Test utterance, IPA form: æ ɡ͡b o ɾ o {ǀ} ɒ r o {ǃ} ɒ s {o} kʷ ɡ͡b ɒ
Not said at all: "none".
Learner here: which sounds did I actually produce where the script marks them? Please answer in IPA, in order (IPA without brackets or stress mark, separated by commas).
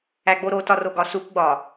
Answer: t, ɡ, u